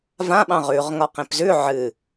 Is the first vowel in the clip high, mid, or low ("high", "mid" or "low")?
low